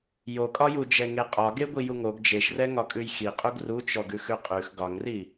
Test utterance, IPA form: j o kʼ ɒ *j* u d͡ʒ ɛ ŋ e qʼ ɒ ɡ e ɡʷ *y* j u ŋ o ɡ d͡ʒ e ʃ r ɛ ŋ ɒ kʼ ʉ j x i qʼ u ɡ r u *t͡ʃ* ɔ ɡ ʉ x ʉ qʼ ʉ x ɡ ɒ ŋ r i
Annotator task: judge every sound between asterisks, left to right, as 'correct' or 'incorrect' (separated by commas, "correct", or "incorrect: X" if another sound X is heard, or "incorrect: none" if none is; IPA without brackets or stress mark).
correct, incorrect: i, correct